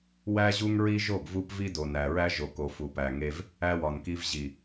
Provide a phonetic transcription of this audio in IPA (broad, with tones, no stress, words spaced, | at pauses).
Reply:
wæ˦ʑu˦ŋɹi˦ ʒo˦˨ɡvu˦pvi˦ do˨næ˨ɹæ˦ ʒo˨ko˨fu˨pæ˨ ŋe˦v | æ˦wɒ˨nki˦v ʑi˨